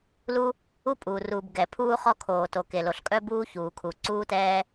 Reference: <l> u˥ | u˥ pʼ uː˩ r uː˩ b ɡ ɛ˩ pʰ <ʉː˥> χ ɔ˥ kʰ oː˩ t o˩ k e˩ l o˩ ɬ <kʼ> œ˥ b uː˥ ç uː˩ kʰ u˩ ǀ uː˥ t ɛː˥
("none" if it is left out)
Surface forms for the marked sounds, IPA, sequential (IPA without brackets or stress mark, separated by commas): l, uː˥, kʼ